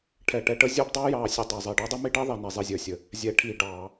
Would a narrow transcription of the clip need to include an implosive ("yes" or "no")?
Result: no